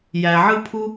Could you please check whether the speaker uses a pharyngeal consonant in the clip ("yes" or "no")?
yes